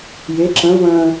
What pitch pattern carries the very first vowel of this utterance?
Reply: rising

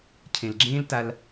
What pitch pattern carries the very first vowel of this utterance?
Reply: low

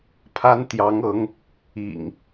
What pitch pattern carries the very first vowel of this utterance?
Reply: high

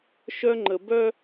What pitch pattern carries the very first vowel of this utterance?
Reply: high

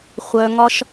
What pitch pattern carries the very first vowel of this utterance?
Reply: high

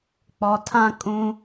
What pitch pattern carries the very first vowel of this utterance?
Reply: low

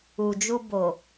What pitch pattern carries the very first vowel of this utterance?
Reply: low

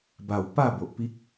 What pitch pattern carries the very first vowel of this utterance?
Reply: low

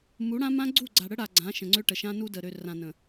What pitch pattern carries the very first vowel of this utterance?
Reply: rising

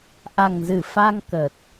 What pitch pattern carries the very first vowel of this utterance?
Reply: low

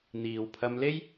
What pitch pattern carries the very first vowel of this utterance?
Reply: low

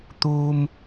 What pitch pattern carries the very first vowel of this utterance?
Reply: low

